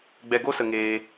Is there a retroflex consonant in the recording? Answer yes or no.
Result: no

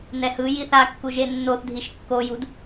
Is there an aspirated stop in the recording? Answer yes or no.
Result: no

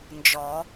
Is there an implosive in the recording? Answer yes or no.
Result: no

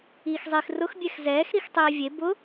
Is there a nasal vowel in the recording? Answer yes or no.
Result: no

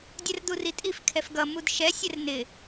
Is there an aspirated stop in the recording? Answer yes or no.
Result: yes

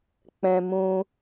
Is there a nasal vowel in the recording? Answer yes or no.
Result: yes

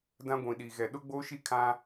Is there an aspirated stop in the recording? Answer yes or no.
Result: yes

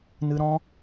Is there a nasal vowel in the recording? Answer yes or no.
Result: yes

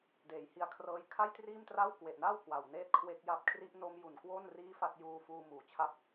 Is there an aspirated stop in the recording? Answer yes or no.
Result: yes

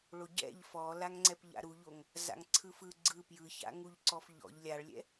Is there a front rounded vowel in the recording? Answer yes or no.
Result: no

